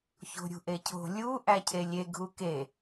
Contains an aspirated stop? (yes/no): yes